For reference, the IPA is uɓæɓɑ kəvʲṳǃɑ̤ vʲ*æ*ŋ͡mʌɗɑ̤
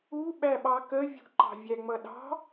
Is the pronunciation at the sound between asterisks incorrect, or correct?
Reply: correct